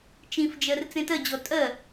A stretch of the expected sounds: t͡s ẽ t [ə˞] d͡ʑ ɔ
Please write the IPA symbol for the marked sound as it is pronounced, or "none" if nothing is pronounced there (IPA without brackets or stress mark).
ɜ